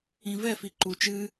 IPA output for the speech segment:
ĩvɛfi ǃu t͡ʃɨ

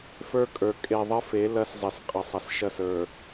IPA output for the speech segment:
fə˞˦kʼə˞˨ kʼe˨ðˤə˦fe˨˦ lɐ˦szˤɪ˨s qʼə˨sˤɐ˨sʃɐ˦˨s ə˞˨

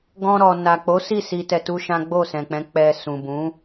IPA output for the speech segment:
ɡɔ̃˧ ɾɔ˨ na˨k͡po˨˦si˦˨ si˧ tɛ˧tu˦ʃã˦ ɡ͡bo˦˨sɛ̃˨k͡pɛ̃˨˦ k͡pɛ˧ sũ˨bũ˨˦

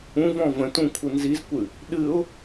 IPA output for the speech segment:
ũvɔ̃ və̃tũ kʷʰɯnzizkʷɨ | ɗɨʊ̯

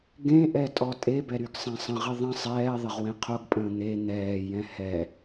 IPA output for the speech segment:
ɡẽʔɛtʼɔ tʼebɛɾyɡsˤẽ sˤə̃ʁɪ ðˤə̃ sˤɛːðˤəʁwẽ qʰoɡpʼə̃ː n̪e n̪ɛːjɛ̃ hɛ

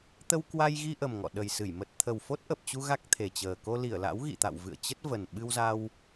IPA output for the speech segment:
t̪ə˧wkwa˧jɣi˧ʔə˨˩m ŋɔ̰˧˨ɗə˨˩jsɨ˧˩j mə˨˩t̚ t̪ʰə˨˩wfo˦˥t̚ʔə˨˩p̚t͡ɕu˧ ɣa˦˥k̚ t̪ʰe˨˩t͡ɕəː˨˩ ko˧li˧˩ə̯la̰˧˥w ɣḭ˧˨t̪a̰˧˨wvɨ̰˧˨ə̯ t͡ɕə˦˥t̚və˨˩n ɓɨ˧wza˧w

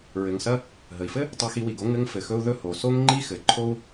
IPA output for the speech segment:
ɹɘ˩ŋsɐ˧ | ɦə˩i̯fɘ˥ | tˤo˧xi˧wi˩ɡo˥ ŋɘ˧ŋ fɘ˩xɵ˧u̯ ðɵ˥ho˩ so˥ŋŋ͡ǃi˥xɘ˩ǃʰo˥u̯

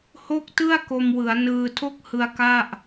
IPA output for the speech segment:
ho˥˩k̚tɯ˥˩a̯ ko˧mwɯ˩˦a̯ nɯː˧tʰo˥˩k̚hɯ˧a̯ ka˥˩ʔ

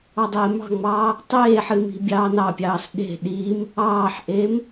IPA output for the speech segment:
ɑdˤeːmɑ̤ŋ͡mɑː | tˤeːħɨ mi̤bʲɑːnɑpʲɑːs ɗe̤ ɗiːm | ɑːħʔeːm

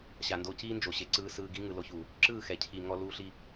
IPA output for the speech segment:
ɕa˧ndo˦ ciː˦nd͡ʒo˨ ɕe˨ǀɯː˧ sɯː˧ɡi˦ ŋɯ˨lo˧çu˨ | ǁɯː˦˨xɛ˨cʰi˨ ŋɔ˧ luː˧ɬi˧

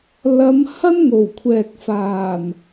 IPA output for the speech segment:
lɐ˨˧m hɐ˥nŋo˨˩wkʷʰɛː˨k̚faː˨˩n

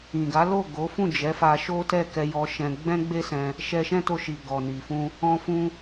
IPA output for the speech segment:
ĩ˨ɡa˨˦lo˦˨ ɡo˨˦ fũ˦˨d͡ʒɛ˨˦ fa˧ ʃo˦tɛ˦˨ kɛ˧jɔ˧ ʃɛ̃˧ ɡ͡bɛ̃˦ɡ͡be˦sɛ̃˧ | ʃɛ˧ʃɛ̃˦to˧ʃi˨ ɡɔ˨ni˨fũ˧ | ɔ̃˧fũ˧

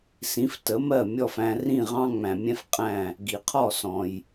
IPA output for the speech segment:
sĩ˩˥ftə˩˥mɜ˥˩ mʲɔ˥˩fæ̃˧ rĩ˥˩ʁɑ̃˥ŋ͡mæ̃˩mʲɛ̃˥f qʼæ̃˥˩ | ɡi˩qʰɔ˥˩sɔ̃˩j

